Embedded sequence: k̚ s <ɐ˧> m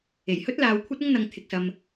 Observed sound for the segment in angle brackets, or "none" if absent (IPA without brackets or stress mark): ɐ˧